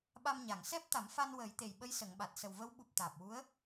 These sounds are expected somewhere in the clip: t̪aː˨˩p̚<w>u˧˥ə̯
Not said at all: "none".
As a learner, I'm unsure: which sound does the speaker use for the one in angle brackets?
w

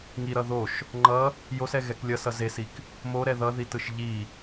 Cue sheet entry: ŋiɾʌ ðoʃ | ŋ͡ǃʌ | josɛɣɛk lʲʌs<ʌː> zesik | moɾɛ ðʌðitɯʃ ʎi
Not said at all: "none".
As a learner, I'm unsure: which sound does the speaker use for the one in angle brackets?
ʌ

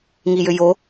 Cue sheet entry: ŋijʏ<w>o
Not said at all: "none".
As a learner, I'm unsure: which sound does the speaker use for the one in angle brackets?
j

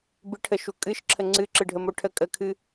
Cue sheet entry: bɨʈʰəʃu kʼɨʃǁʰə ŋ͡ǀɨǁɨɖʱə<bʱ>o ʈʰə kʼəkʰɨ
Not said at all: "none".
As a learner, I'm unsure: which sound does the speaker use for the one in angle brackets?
m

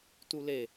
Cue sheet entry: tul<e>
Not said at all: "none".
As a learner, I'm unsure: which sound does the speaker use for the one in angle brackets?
e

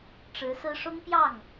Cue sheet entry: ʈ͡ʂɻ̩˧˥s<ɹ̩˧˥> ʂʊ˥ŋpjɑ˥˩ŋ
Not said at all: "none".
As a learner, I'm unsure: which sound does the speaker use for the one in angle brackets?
ɹ̩˥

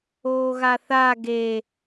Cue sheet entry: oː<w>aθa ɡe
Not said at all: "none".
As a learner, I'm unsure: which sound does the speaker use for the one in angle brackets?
ɣ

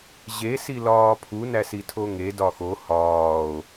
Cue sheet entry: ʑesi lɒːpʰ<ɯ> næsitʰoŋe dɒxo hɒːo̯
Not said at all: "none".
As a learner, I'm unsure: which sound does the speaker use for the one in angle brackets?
u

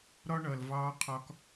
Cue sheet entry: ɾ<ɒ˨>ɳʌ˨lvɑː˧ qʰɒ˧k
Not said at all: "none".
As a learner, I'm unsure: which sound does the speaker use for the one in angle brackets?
ɒ˦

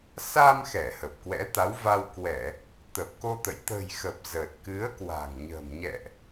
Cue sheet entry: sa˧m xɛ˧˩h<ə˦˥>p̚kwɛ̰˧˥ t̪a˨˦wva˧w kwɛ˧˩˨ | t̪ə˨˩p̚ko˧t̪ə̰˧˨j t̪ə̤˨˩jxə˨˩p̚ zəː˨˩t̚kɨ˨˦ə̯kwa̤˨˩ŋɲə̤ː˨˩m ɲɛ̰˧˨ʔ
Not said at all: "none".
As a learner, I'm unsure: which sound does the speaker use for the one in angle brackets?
ə˨˩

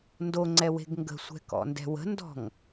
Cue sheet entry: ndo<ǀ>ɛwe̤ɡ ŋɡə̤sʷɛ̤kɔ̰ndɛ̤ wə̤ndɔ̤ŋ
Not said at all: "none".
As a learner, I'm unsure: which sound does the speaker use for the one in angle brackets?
ŋ͡ǀ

